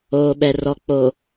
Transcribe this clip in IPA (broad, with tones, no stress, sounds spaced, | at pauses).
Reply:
oː˨ ɓ ɛ˨ r ɔ˨ k͡p o˨